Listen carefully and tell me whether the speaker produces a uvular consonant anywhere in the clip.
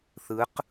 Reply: yes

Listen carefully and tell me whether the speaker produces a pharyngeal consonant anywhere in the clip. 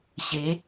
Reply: no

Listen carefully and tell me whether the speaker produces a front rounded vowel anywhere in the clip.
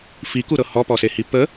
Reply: no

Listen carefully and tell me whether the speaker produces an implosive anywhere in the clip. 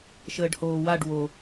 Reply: no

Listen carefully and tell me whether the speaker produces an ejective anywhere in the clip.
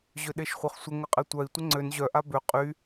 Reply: yes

